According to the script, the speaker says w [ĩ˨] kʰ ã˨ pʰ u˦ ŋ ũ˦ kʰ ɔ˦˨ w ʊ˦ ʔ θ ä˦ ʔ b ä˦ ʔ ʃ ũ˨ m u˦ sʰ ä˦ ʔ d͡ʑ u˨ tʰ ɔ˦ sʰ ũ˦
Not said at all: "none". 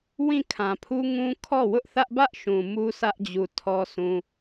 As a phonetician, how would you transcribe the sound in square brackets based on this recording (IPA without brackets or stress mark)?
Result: ĩ˦˨